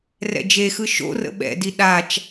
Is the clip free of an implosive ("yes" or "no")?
no